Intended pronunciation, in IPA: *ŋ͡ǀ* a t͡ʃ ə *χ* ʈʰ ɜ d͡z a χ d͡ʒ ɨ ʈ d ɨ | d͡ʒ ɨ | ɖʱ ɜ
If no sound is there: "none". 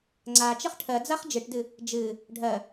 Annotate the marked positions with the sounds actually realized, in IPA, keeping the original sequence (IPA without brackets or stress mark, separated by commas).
ŋ͡ǀ, χ